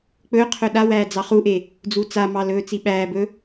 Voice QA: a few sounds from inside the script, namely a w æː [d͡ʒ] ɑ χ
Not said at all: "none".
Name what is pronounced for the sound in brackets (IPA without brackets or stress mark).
d͡z